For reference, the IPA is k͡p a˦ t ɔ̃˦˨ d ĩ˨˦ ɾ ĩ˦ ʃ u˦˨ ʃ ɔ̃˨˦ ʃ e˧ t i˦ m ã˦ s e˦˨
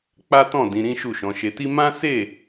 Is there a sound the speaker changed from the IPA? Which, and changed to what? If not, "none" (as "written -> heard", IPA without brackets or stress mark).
none